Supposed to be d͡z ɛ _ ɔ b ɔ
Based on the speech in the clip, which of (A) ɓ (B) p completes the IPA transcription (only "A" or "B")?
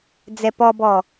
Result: B